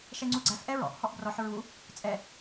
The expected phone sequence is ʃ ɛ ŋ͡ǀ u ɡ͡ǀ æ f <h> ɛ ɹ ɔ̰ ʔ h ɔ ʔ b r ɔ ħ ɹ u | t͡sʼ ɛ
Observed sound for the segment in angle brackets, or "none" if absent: ʔ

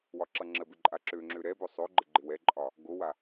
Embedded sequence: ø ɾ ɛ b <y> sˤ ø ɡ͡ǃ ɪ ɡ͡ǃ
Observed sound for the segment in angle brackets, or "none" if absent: ø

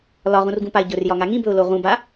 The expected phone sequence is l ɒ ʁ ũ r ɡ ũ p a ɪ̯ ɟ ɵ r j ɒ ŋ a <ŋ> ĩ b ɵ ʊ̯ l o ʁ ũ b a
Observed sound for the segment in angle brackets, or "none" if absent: ŋ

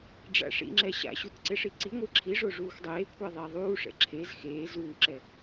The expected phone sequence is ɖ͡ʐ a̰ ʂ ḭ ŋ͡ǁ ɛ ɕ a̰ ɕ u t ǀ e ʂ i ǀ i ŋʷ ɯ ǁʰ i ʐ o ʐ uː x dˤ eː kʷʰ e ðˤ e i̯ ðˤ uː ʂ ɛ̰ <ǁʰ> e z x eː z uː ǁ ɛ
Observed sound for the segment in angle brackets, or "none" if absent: ǁʰ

